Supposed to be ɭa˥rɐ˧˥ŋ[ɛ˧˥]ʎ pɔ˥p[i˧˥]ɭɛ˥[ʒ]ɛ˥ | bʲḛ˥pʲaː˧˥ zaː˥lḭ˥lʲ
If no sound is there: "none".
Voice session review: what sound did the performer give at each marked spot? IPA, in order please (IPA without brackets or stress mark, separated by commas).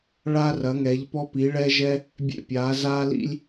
ɛ˧˥, i˧˥, ʒ